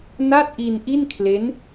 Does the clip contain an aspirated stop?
yes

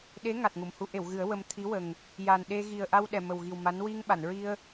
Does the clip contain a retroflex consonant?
no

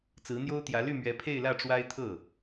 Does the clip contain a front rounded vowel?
yes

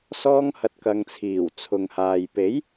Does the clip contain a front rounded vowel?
no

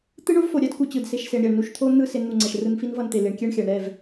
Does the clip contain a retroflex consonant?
yes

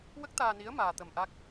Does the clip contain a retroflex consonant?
no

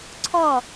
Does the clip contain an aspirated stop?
yes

